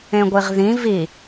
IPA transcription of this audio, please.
ẽ ɡʷ i ʁ ð ĩ v i

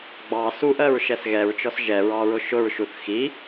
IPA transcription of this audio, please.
ɡ͡b ɑ s u ʔ ɜ ɹ ʃ ɛ s ɣ ɛ ɹ t͡ʃ ɔ s ʒ ɛ ɹ ɑ ɹ ʊ ʃ ʊ ɹ ʃ u θ x i

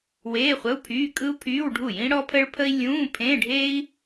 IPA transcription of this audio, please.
w eː˧˥˧ χʷ ə˧˥˧ u̯ pʰ yː˧˥˧ kʼ ɯ˥ u̯ pʰ yː˧˥˧ w ɖʱ u˥˩ j ĩ˥ ɽ ɔ˥ pʰ ə˥ ɭ pʰ ə˥ i̯ lʲ ũː˧˥˧ pʰ ẽ˧˥˧ ɖʱ e˥ i̯

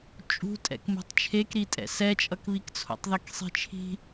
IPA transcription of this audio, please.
t͡ʃʼ ṳ tʼ ɛ̰ k m ṳ tˤ t͡ʃʰ e k ɾ i tʼ ɛ̰ s ɛ t͡ʃʼ ʌ k β i k t͡sʰ o̰ tˤ ð i k sˤ i̤ t͡ʃʰ i̤

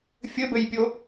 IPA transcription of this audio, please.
fʲ ɘ b ɘ j pʲ o

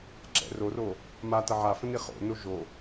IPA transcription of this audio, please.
ǁ ɛ̰ r o r o | m a t ɐ ʕ a f ə̃ n i χ o̰ n o ʒ o

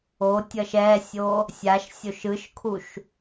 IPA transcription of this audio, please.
o tʲ ʌ ʃ ɛ sʲ o | sʲ a ʃ sʲ o ʃ ɯ ʃ kʰ u ʃ

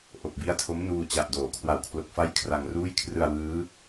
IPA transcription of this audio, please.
ʔ o˨˩ k̚ b i˦˥ a̯ tʰ o˦˥ m n uː˧ t͡ɕ a˨˩ ʔ d oː˩˦ kʰ w a˨˩ w kʰ l o˨˩ k̚ f a˦˥ j kʰ r a˧ ŋ r uː˥˩ j kʰ r ɯ˧ a̯ w ɯː˦˥

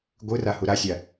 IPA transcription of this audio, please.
ɡʷ ɯ r a h u ɾ a sʲ a

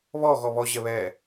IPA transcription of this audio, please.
β ɔ ɣ ɔ β ɔ ʑ ɛ β ɛ

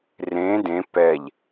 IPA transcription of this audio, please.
r ẽ d ẽ p ɛ ʎ

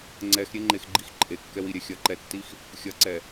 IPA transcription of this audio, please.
ŋ͡ǀ ɛ x ɾʲ e ŋ͡ǃ e x ɡ͡ǃ i x ǃʼ e kː ɛ w i ɾʲ ɛ xʲ ɐ ǃ ɛ tː i x | xʲ ɐ ǀ ɛ

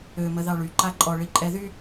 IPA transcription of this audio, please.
ø m ə ð ɑ ɭ y ǃ a ǃʼ ɔ ɭ i ǃʼ ɛ ð y

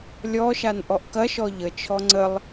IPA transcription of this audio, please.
lʲ ɔ ʃ a n ʔ ɔ ʔ k ɐ ʃ ɔ ʎ ə t͡ʃʰ ɔ ŋ͡ǀ ə lˠ

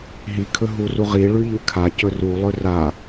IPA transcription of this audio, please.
ɦ i kʰ ɵ ɦ u r u ʁ i ɭ ʉ ʎ ʉ kʰ a c ɵ r u lˠ ɵ r a

